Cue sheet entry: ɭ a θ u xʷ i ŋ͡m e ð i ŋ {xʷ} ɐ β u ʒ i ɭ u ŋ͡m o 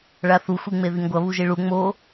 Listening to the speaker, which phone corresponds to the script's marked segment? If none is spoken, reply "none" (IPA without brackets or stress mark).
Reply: ɡʷ